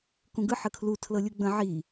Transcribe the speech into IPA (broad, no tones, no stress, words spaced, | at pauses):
kũɡɯ ħəkʰlu tʰlɤlʲuɡ͡bə̃ ʕi